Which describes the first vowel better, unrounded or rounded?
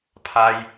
unrounded